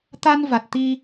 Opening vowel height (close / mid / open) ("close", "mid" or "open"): open